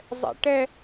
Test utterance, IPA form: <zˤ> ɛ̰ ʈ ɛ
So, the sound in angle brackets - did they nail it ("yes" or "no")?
yes